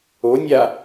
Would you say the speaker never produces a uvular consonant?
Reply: yes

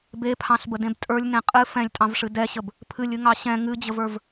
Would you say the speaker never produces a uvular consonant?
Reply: no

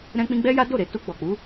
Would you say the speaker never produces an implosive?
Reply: yes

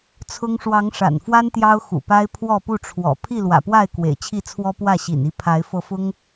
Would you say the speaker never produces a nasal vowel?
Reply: yes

